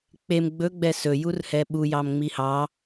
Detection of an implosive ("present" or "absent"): present